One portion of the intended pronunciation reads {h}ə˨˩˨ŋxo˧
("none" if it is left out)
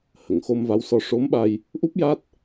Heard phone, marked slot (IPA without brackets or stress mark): h